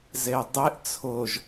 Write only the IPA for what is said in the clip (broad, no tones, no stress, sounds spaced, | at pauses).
z e dˤ e ʔ t͡sʰ ʊ ʒ